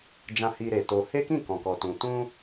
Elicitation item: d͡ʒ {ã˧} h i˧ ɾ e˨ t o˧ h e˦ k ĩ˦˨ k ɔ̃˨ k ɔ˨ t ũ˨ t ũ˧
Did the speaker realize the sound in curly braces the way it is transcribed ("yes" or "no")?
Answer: yes